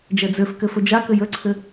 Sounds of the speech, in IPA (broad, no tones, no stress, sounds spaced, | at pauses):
d͡ʒ ɛ d͡z ø f k ɘ f ɵ d͡ʒ a k ɘ j ə ǀʰ ɘ